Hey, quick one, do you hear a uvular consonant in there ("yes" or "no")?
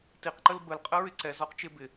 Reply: yes